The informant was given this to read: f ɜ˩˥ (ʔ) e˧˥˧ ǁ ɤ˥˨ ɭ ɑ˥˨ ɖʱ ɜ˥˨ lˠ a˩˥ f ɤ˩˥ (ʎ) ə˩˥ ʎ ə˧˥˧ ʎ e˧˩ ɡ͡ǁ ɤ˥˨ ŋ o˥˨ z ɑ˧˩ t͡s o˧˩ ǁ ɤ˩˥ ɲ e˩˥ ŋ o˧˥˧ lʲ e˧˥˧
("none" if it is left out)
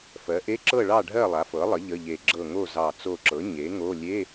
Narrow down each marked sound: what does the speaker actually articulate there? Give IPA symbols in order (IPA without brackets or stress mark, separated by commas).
ʔ, lˠ